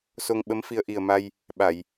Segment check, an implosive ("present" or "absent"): present